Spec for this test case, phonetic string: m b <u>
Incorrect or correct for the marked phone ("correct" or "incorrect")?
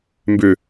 incorrect